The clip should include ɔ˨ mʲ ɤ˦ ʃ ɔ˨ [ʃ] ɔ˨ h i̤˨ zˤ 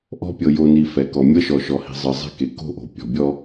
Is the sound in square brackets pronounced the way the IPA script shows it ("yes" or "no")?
yes